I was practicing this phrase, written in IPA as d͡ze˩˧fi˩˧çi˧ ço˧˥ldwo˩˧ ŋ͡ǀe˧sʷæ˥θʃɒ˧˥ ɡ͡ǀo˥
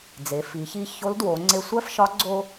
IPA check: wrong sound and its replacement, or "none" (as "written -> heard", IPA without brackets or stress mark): θ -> f